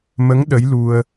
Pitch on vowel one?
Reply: rising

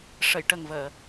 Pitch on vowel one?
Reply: low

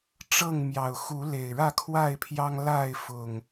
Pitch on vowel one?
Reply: falling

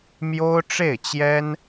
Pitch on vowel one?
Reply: high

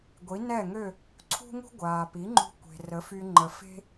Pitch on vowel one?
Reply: rising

